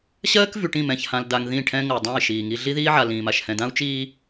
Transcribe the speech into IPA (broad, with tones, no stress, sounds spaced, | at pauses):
ɕ ɜː˦ k v y˨ ʈ ĩ˦˨ m ɛ̃˨ ç h ã˨ l d a˨ ŋ ð ĩ˦˨ ʈʰ ɛ̃˦ ŋ ɜ˨ dˤ ã˦˨ i̯ ʃ iː˨ ŋ i˦ ɮ i˦ ð iː˦ ʕ a˨ l ĩː˨ m a˨ ʃ h ɛ̃˨ d ã˦ u̯ t͡ʃ iː˦